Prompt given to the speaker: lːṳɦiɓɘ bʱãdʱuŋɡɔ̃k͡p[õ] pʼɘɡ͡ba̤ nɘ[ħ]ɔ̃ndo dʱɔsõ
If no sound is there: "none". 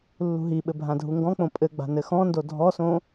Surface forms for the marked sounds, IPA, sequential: õ, x

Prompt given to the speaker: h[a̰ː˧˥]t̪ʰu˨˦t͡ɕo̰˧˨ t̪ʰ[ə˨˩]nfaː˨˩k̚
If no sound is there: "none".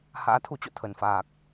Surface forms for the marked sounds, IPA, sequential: a̰ː˧˥, ə˨˩

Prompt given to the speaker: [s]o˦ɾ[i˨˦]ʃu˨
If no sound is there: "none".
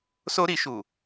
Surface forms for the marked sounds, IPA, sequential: s, i˨˦

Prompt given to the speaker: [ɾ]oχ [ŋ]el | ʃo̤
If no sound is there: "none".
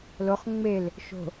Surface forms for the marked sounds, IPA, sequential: l, ŋ͡m

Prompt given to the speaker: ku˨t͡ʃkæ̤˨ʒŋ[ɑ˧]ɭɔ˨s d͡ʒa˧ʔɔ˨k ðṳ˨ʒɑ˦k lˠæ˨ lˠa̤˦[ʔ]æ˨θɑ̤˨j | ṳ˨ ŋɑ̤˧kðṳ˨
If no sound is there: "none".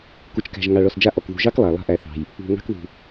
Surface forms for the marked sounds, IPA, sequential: ɑ˨, ʔ

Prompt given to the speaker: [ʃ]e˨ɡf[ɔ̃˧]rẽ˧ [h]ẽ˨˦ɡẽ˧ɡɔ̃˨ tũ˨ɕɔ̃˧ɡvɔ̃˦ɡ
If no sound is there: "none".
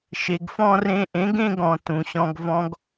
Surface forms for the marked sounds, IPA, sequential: ʃ, ɔ̃˧, ʔ

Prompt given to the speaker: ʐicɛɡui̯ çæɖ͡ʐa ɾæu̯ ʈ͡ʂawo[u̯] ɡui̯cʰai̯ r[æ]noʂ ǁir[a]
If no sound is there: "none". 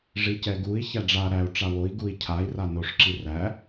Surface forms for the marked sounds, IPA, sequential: i̯, a, æ

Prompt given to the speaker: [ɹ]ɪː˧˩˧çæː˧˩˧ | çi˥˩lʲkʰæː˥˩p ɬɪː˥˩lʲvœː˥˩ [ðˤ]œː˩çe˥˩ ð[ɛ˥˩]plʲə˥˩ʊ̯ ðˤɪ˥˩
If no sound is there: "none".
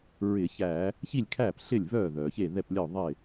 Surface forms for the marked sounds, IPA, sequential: ɹ, ð, ɛ˥˩

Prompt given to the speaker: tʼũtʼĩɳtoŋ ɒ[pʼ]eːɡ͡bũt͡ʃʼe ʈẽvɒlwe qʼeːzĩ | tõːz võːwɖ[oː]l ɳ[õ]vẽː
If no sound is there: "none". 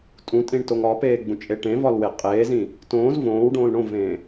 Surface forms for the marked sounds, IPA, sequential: p, õː, õ

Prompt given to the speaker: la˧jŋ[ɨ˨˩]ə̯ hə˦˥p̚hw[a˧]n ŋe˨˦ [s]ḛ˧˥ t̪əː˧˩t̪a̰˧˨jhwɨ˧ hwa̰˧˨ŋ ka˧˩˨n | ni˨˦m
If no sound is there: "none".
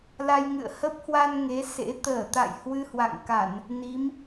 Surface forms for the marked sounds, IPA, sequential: ɨ̰˧˨, a˧, s

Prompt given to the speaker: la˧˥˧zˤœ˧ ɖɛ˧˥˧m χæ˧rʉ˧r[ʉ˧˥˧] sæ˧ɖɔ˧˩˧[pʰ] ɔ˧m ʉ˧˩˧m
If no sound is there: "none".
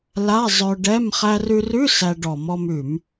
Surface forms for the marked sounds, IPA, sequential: ʉ˧˥˧, m

